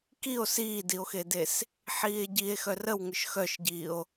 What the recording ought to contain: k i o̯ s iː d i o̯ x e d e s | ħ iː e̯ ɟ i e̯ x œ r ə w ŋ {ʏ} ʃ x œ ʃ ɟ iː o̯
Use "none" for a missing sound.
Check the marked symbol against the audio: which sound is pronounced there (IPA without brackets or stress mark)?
ʏ